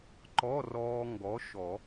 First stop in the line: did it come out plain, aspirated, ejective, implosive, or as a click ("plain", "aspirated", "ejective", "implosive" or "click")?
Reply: click